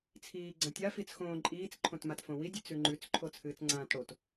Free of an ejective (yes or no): no